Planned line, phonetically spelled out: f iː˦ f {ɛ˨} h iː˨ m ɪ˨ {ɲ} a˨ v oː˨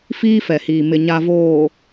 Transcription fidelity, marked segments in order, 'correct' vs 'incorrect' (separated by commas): correct, correct